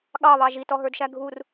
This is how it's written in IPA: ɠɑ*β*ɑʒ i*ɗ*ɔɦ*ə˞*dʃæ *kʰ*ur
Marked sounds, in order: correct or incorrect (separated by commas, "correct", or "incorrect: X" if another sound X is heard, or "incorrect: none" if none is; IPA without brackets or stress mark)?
correct, incorrect: t, correct, incorrect: ɡʱ